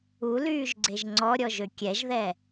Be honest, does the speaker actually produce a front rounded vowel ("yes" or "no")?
yes